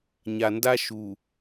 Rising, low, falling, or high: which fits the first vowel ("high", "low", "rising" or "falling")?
low